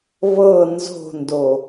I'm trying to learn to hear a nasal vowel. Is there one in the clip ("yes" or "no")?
no